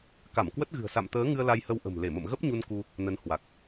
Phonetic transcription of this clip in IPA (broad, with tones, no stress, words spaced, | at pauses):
ka˧˩mkwə˦˥t̚ɣɨ̤˨˩ə̯ sa̰˧˨mt̪əː˨˦ŋɨ˧ə̯ la˧jhə˧wʔə̤˨˩m le˧˩mə̰˧˨mɣə˦˥p̚ɲu˧n ku˧ | nə˨˦nhwa˨˩k̚